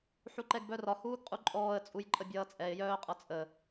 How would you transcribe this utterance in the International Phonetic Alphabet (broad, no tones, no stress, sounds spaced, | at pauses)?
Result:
ħ u ǃ ɛ ɡ b œ r ɒ h uː ɡ qʼ u ǃʼ ɔː ə̯ t͡sʼ u j ǃʼ ə bʲ ʌː t͡sʼ ɛ ɪ̯ j œː qʼ ʌ t͡sʼ ə